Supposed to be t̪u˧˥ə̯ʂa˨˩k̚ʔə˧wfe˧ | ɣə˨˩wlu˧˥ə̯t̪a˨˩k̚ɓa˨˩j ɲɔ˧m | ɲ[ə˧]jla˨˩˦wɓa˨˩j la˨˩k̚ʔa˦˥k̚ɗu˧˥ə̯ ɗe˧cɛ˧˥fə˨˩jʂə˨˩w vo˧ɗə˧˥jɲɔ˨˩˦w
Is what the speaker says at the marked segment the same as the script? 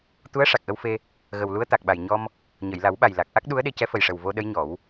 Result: no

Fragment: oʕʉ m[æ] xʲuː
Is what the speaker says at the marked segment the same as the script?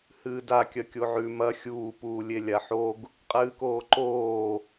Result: no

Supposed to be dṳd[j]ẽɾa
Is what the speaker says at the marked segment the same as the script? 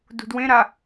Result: no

